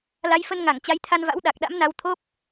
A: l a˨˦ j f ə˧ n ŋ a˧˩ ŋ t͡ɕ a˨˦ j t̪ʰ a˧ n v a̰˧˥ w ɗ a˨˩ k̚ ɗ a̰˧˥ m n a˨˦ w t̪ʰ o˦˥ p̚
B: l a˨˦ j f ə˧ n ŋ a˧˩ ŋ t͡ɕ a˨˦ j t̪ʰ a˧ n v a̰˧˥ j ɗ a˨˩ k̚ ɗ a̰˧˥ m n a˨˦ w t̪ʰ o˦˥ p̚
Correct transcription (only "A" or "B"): A